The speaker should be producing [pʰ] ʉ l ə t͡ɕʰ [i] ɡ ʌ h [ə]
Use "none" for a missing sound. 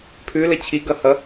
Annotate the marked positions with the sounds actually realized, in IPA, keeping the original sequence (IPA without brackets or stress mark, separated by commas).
pʰ, i, ʌ